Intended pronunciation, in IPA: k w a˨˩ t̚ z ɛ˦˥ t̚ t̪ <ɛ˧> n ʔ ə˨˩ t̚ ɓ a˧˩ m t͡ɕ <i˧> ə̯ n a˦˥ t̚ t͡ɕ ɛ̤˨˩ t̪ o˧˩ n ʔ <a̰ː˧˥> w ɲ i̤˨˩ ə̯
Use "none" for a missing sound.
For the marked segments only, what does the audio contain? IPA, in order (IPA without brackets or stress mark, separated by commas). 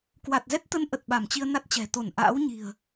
ə˧, i˧, a̰ː˧˥